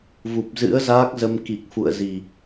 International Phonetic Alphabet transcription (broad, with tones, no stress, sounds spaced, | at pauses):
v u˨˩ p̚ z ɨ̰˧˥ ə̯ z aː˦˥ k̚ z ə˧ m k i˨˩ k̚ f ṵ˧˨ ə̯ z i˨˩